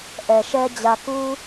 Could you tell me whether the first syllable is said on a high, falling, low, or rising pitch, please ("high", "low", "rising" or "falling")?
low